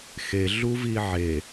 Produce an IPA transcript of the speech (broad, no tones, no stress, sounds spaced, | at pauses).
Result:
x e ɮ u v i ʕ e